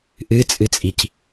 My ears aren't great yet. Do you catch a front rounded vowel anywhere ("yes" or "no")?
no